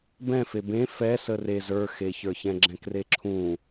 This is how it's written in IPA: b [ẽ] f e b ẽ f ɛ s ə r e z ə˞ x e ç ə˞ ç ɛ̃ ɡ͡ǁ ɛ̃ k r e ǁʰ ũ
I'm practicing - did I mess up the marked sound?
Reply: yes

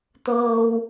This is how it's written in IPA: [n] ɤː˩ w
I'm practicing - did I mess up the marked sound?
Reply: yes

